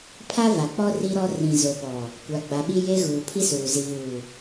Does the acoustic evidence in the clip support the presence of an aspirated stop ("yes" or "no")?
yes